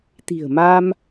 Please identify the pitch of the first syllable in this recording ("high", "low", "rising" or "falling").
low